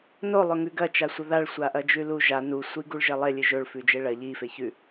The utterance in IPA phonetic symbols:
n o lˠ ɵ ŋ ʉ ɡ ɐ t͡ʃ a sʷ ɐ ð a ɭ sʷ a ʔ ɐ d͡ʒ ʉ l u ʒ a n u sʷ i ɡ u ɭ ʒ e lˠ e lʲ ɨ ʒ ɵ ɭ f ʉ d͡ʒ e ɭ ɐ ʎ i f e ç ʉ

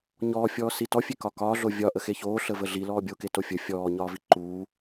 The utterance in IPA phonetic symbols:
ɲ ɔː fʲ ɔː s i t ɔ fʲ e k ɒ k ɒː ɮ o vʲ ɒ ʔ ə x e ç oː ɬ ə v ə ɮ i l ɔː bʲ o k e t o fʲ ə fʲ ɔː ɲ ɒː v i ǃ uː

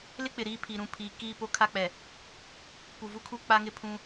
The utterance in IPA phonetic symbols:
l ɪ˦ k͡p ɪ˨ ɾ iː˦˨ pʰ i˨ ɾ ũ˨ pʰ iː˨ k iː˦˨ p o˦ kʰ a˦ k͡p ɛ˨ | p u˨ v u˦ kʰ u˦ k͡p a˦ ŋ ɪ˦ pʰ ũ˦

